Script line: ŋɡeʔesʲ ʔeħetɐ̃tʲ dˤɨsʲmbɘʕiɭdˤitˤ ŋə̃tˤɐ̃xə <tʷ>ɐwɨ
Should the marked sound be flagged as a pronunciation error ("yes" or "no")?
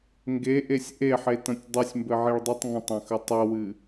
yes